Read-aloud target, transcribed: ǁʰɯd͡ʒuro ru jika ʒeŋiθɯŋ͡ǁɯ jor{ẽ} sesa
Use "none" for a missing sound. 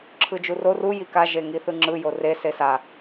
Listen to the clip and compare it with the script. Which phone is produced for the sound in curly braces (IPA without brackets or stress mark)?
e